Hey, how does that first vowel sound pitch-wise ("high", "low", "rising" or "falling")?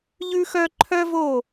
high